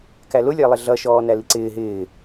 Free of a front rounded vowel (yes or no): yes